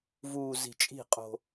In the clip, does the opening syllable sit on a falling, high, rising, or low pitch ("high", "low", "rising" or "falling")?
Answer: low